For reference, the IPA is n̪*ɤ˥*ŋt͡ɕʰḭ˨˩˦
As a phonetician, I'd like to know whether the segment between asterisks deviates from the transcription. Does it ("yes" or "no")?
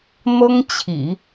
no